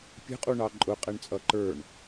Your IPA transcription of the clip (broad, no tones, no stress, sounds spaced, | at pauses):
pʲ ə̤ qʼ u ɳ ɑ ǃʼ ʊ qʼ ɛ ɳ t͡sʼ ʌ ǃ ə˞ ɳ